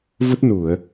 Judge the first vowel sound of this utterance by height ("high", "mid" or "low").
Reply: high